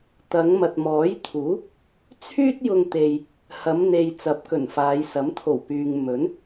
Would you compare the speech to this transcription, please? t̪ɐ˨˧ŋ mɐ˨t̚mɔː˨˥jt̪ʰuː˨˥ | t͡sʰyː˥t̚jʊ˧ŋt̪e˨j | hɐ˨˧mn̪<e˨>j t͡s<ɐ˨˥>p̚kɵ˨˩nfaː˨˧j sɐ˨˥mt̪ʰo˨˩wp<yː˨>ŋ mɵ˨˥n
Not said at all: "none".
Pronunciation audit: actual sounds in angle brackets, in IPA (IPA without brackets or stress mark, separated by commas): e˨, ɐ˨˥, yː˨